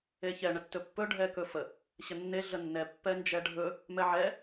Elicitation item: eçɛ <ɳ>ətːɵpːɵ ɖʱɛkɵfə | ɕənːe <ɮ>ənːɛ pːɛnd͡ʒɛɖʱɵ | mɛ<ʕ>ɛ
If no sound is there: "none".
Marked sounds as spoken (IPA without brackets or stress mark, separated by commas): ɳ, ɮ, ʕ